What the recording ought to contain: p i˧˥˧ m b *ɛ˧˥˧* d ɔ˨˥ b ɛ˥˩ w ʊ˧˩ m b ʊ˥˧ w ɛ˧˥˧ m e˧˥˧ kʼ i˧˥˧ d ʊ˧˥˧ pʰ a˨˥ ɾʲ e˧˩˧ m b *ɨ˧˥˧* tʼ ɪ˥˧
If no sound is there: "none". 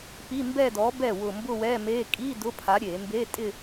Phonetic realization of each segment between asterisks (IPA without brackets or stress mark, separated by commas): ɛ˥˧, e˧˥˧